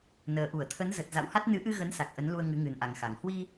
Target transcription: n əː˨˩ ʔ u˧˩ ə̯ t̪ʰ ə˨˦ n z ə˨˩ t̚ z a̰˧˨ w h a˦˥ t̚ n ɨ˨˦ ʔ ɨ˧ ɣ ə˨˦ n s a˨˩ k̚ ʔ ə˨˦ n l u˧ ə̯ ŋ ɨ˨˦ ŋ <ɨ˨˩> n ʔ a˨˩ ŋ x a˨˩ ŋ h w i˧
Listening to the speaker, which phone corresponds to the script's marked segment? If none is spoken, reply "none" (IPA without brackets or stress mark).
ɨ˨˩